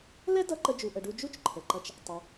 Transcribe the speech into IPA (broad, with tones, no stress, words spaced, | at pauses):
lɛ˥dʌ˧ ǃə˧d͡ʒu˩ʔə˩ɖu˧ d͡ʒu˥t͡ʃǃʰə˩ǃɐ˧t͡ʃ | tˤɐ˩